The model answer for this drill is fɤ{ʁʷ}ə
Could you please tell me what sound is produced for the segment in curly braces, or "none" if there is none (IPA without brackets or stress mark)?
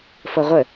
ʁʷ